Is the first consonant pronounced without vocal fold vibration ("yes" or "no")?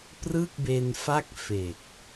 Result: yes